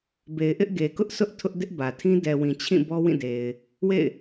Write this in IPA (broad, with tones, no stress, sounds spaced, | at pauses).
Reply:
b e˨ ɪ̯ ʔ ɪ˦ ʔ ɡ e˨ k ʊ˦ ʔ s ʊ˦ ʔ tʰ ʊ˦ ʔ d ɪ˦ ʔ b ä˨ tʰ ĩ˦ d ɛ˨ w ĩ˨ t͡ɕʰ ĩ˦˨ b ɔ˦ w ĩ˦˨ d e˨ ɪ̯ | w ḛ˦˨ ɪ̯